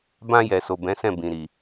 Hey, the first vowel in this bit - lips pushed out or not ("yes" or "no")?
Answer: no